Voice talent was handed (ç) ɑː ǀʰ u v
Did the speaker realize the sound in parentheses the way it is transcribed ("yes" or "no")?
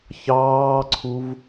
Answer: yes